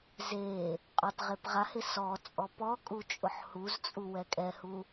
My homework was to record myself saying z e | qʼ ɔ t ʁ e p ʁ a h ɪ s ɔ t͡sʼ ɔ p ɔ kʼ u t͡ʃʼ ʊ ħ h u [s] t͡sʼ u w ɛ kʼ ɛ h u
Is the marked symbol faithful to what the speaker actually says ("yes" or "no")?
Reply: no